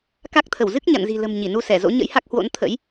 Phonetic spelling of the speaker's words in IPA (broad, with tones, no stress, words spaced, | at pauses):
ka˦˥k̚ t̪ʰə˧˩wzɨ˦˥k̚ ɲa̰˧˨nzi̤˨˩ lə̤˨˩m ɲi˧˩nu˧sɛ˧˩zo̰˧˥ ɲə̰˧˥jha˦˥k̚hwo̰˧˥n t̪ʰə̰˧˥j